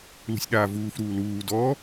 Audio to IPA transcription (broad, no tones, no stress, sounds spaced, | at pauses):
l ṳ sʲ ɗ aː v uː f ɾ uː l uː d ɔ